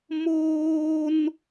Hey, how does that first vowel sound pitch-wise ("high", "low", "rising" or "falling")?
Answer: high